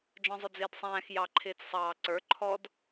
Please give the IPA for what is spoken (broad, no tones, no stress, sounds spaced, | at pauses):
d͡ʒ ɔ̃ zˤ ʊ d͡z ɪː d sˤ æ̃ː x j ɑ ǃʰ ɪː t͡s sˤ ɑː ǀ ə˞ ǃʰ ɔ d